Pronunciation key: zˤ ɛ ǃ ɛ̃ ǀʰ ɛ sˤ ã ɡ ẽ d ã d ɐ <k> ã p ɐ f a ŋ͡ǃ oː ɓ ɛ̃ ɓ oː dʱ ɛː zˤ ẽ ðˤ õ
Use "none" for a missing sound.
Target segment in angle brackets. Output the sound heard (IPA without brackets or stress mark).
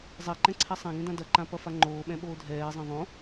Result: ǃ